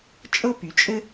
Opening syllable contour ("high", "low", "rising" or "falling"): high